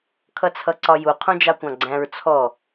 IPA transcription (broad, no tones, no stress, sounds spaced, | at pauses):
kʰ ʌ t͡sʰ ʌ ǀ ɒ j u qʰ ũ d͡ʒ ɑ kʷ ɑ̃ ɡ͡ǀ æ̃ ɹ t͡sʰ ɔ